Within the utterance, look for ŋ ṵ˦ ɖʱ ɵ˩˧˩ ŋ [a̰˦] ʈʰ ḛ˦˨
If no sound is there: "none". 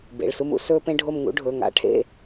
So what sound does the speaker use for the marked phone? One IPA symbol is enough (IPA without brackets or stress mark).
a̰˦